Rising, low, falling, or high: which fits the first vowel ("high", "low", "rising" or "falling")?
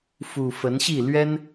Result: low